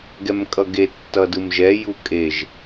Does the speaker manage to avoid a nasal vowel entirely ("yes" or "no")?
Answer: yes